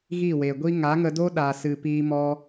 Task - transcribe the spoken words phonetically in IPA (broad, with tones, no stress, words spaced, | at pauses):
ɣi˦˨we˨ɡʷi˦ ŋa˨˦ŋə˧do˦ ɗa˨sɨ˨ piː˧mɔ˧